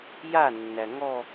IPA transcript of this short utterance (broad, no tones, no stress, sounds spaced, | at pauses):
j a nː æ ŋ ɔ